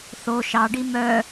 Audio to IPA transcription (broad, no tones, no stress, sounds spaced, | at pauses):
θ o ʃ ɑ ɖ i m œ